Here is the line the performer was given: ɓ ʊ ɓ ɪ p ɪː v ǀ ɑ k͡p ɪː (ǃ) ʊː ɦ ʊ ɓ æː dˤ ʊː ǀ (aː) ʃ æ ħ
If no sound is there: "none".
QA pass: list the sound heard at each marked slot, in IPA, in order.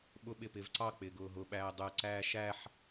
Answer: ɡ, æː

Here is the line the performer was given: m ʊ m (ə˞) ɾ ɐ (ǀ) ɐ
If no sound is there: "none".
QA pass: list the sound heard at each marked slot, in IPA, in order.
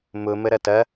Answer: ə, t

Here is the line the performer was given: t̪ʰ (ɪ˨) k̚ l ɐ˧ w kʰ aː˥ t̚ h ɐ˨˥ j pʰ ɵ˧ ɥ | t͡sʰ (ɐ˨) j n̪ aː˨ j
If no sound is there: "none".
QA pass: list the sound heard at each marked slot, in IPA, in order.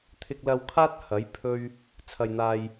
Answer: ɪ˧, ɐ˨

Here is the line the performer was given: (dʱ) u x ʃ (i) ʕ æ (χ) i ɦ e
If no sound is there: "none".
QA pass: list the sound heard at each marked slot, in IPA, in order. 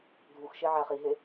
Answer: dʱ, e, χ

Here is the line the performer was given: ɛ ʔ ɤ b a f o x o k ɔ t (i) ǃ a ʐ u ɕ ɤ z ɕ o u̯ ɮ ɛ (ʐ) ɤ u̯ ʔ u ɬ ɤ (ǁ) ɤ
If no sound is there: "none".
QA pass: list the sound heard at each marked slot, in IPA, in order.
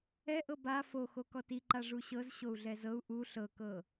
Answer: i, z, k

